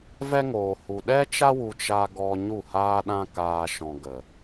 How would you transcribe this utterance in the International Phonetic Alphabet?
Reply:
v ɛ˦ ŋ oː˨ h u˨ ɗ ɛ˦ t͡ʃ a˦ w u˧ t͡ʃ a˧ ɡ ɔ˧ ɲ u˦˨ h aː˦ ɗ ã˦ k aː˧ ʃ ɔ̃˨ ɡ ə˨

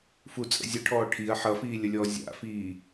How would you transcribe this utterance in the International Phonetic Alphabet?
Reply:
f u t͡sʼ ə̰ zʲ ə ʈʰ ɔː ʈʰ i ɐ̯ ħ ʌ f iː lʲ ə lʲ ɔː zʲ a̰ f iː

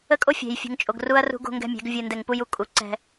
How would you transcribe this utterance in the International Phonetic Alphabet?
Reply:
ə˦ kʼ o˦ fʲ ɛ̤˨ j fʲ ṳ˨ ŋ t͡ʃʼ o˨ ɡ r u˦ ɐ̯ r ṳ˦ ɡ o̤˦ ŋ ɡ ɛ̤˦ mʲ ɛ̤˨˦ ɡ vʲ ɯ˨ n d ɛ˨ ŋ p u˦ j u˦ kʼ u˨ ǀ ɛ̤˦

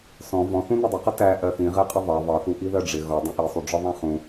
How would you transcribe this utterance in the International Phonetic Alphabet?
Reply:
s ɔ̃ v ɔ̃ θ ũ n ʊ dˤ ə q ʌ t æ ʔ ɜ θ ĩ ʁ ɛ qʼ ɪ ðˤ ɑ ðˤ ʌ θ u ʔ i ð ɜ ɖ͡ʐ ɪ ɣ ɔ dˤ ĩ ʔ i sˤ u ɖ͡ʐ ɒ ðˤ æ̃ χ ũ

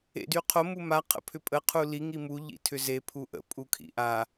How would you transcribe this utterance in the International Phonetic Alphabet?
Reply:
ḛ d y qʰ o m u m a qʰ ə̰ pʰ ʏ pʼ ə qʰ u l i ŋ i m u ʎ ḭ tʰ ʏ z e pʰ u ʔ ə̰ pʼ u kʰ ḭ ʔ a

